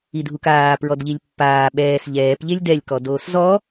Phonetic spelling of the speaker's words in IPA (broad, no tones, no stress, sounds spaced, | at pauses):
i dʱ u k aː p ɹ ɔ d ʎ i lʲ pː aː ɓ ɛː s ʎ ɛː p ʎ e lʲ d ɛ lʲ k ɔ d oː s z ɔ